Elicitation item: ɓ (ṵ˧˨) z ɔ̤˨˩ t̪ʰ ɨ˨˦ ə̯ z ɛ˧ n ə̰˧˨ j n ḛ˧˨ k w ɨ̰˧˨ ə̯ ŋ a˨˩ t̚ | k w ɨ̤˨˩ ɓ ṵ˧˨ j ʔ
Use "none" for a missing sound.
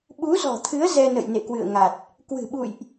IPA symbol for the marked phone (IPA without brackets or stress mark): u˨˦